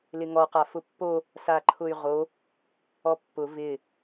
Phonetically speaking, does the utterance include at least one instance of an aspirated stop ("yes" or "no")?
yes